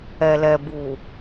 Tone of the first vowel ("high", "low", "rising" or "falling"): low